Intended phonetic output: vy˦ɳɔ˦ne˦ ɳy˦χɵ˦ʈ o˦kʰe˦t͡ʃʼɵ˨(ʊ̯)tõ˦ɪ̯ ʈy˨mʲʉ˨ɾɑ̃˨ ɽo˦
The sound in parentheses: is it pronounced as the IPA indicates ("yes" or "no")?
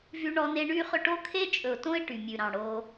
yes